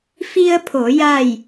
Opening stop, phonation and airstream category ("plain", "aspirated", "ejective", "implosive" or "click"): aspirated